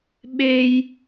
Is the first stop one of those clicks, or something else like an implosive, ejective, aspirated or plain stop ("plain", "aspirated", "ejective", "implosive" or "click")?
implosive